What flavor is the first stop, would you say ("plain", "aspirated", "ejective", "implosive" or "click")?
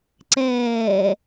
click